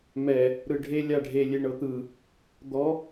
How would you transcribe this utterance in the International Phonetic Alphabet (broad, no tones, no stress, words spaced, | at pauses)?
mɛ | ɾɯɖʱe lʲaɖʱe lʲeɳɤt̪ɯ | d̪ɔ